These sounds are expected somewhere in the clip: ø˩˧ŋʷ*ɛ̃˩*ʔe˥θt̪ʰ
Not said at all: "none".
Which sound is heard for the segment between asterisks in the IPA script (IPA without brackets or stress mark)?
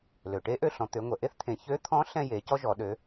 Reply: ɛ˩